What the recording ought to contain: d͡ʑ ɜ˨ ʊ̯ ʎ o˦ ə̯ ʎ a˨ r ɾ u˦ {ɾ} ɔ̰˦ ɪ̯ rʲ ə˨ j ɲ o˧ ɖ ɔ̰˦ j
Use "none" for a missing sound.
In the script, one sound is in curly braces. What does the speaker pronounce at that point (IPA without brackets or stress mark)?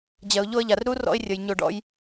r